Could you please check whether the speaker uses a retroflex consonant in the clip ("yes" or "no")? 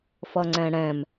yes